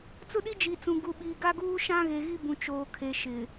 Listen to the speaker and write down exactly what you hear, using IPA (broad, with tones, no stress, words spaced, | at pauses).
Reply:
t͡sʊ˦ɗi˦d͡ʒi˨t͡sũ˨ ɡu˨ɓiː˨ɡa˦ɡuː˦ ʃã˦ɣe˨ɣi˦bũ˨ t͡ʃoː˨kʰe˨ ʃɪ˨